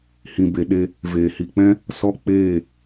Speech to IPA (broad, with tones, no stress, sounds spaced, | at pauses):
h ĩ˨ b e˨ ɗ e˧ | v eː˨ h i˨ k͡p ɛ̃˦ | s ɔ˦ k͡p eː˦˨